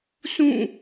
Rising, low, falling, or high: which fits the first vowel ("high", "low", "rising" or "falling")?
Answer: falling